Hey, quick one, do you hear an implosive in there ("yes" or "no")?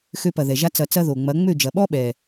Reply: yes